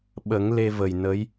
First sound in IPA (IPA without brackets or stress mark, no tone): ɓ